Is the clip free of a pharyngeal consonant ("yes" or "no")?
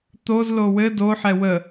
no